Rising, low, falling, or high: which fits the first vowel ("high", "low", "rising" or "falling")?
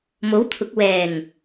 rising